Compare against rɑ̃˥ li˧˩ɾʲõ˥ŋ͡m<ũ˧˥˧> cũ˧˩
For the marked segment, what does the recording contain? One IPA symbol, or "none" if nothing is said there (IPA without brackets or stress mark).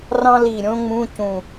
ũ˧˥˧